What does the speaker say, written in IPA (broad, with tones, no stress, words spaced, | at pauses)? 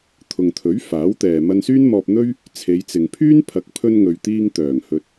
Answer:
t̪ʰʊ˨ŋt̪ʰɵ˨˥ɥ faː˨˥wt̪ɛː˨ mɐ˧nsyː˥nmɔː˧p̚n̪ɵ˥ɥ | t͡sʰe˨˧jt͡sɪ˨ŋpʰyː˥n pʰɐ˨˥k̚pʰɵ˧nŋɵ˨ɥt̪iː˧ŋ t̪œː˨˩ŋ hɵ˨t̚